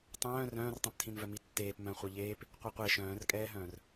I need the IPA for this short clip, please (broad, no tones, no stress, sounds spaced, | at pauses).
tˤ œ̃ː r œ̃ː r tˤ œ̃ p tʰ ĩ n v œ m i tː eː p m œ̃ χʷ œ ʎ eː p | qʷ e qʷ e ʃ œ̃ː r kʼ ɛː ɦ œ̃ː r